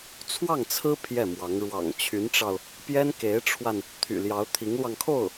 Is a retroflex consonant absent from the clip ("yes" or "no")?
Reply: no